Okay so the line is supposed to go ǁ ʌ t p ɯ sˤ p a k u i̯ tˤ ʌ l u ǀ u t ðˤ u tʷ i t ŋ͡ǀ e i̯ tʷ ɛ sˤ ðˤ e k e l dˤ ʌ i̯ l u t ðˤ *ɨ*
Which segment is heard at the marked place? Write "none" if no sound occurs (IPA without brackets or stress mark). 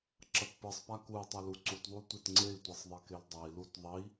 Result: i